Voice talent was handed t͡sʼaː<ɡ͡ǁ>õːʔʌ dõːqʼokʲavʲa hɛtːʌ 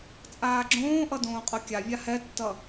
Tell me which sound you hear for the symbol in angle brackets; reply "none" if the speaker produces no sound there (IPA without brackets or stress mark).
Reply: ɡ͡ǁ